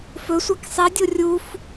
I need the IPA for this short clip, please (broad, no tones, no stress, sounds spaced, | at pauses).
f ɵ sʷ a k sˤ i dʲ o rʲ u f